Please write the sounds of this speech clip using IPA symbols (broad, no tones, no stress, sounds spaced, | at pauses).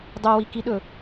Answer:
dˤ ɵ w i k i ɗ ɵ